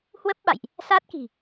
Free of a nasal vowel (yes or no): yes